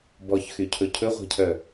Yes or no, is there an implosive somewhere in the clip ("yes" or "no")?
no